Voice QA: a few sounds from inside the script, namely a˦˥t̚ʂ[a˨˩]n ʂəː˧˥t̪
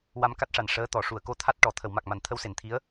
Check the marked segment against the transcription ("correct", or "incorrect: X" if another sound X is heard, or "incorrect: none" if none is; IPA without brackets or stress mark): correct